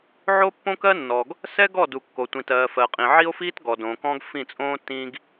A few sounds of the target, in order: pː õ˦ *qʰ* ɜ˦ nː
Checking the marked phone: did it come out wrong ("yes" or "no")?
yes